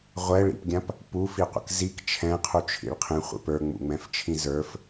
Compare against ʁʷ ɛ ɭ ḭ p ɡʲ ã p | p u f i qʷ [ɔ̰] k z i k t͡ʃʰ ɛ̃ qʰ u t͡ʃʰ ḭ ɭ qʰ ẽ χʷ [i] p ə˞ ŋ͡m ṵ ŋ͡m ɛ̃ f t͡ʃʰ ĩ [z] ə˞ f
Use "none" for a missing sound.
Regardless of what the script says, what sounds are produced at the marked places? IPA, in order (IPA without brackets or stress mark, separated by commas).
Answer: ə̰, ḭ, z